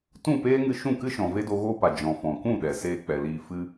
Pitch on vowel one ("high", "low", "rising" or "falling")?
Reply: falling